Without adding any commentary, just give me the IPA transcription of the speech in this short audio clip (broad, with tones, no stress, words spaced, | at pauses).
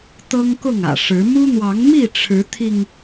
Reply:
t̪ɤ˦ŋkʊ˥˨ŋä̰˨˩ʂɻ̩˨˦ mu˦n̪wɑ˨˦ŋ mi˥˨ ʈ͡ʂʰɻ̩˨˦t̪ʰi˧ŋ